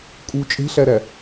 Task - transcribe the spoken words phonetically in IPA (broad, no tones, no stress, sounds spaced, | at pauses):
kʼ u t͡ʃʼ e̤ ɬ æ ɾ æ